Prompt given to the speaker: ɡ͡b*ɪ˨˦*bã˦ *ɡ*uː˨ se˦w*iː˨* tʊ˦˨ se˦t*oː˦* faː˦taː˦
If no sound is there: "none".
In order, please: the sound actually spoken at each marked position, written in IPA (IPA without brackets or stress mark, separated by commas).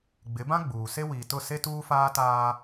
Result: ɪ˨˦, ɡ͡b, iː˨, uː˦